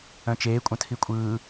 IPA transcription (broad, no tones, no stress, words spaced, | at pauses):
œ̃t͡ʃeː kʷʼœ̃tʰikʷʼɯː